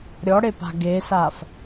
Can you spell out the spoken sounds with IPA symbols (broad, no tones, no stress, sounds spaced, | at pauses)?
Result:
ɾʲ ɔ ɽ e p a̤ ɡ e s a f